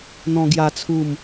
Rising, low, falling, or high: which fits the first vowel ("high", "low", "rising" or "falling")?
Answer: high